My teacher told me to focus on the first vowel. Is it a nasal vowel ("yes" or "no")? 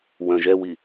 yes